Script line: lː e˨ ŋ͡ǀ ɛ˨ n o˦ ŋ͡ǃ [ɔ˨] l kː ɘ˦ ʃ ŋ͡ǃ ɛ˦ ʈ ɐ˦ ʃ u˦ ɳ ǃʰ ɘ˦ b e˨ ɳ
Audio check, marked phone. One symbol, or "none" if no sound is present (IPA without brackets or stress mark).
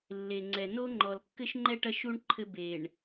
ɔ˨